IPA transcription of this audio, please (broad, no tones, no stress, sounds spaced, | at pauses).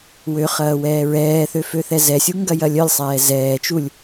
w ø χ ɐː w ɛː ɹ ɛː θ ø f ø θ ɛ z ɛ sʲ u ŋ ɡ ɐ j ɐ lʲ œ lʲ sˤ ɛː z ɛː t͡ʃ u lʲ